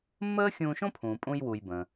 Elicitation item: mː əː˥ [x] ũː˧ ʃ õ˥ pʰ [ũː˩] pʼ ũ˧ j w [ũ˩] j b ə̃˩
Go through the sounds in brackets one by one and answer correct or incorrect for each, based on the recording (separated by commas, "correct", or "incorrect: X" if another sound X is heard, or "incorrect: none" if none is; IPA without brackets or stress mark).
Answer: incorrect: xʲ, correct, incorrect: u˩